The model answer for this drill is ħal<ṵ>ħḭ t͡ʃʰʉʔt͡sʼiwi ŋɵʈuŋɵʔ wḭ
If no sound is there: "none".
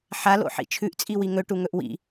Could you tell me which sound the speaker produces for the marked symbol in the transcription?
o̰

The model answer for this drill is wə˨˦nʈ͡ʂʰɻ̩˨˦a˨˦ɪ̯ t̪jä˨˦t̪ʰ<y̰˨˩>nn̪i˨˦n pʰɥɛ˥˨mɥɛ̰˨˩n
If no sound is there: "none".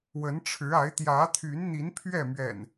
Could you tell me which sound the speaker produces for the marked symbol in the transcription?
y˨˦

